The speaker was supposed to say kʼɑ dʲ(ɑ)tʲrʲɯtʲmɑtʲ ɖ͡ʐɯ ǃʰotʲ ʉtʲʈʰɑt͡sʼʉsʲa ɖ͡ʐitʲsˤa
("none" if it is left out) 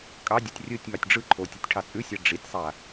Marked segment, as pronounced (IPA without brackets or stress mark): ɑ